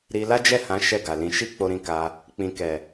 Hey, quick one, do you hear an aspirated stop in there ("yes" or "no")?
no